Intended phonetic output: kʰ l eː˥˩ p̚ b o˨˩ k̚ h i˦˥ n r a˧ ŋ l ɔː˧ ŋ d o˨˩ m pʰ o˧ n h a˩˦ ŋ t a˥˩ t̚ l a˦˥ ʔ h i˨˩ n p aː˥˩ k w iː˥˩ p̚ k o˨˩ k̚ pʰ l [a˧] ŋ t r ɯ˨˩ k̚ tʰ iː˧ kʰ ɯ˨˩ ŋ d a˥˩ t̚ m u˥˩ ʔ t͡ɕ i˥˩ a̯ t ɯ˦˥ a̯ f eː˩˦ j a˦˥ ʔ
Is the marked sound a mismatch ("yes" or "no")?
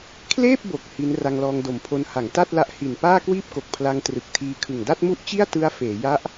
no